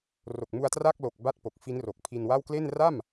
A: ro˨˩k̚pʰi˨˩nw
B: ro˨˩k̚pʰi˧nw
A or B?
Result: B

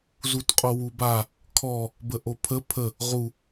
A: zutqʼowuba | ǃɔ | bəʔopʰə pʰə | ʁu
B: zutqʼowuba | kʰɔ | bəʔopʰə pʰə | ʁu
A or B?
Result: B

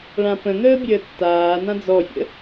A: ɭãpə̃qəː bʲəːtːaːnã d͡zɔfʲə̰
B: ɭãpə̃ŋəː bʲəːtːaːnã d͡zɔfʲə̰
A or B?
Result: B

